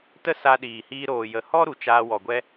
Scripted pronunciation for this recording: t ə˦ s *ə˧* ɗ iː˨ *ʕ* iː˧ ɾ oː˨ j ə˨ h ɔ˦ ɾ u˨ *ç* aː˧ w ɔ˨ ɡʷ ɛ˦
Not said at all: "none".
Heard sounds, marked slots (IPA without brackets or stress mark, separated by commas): a˧, h, t͡ʃ